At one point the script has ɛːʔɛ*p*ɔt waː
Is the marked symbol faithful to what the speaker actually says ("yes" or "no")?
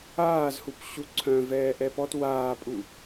yes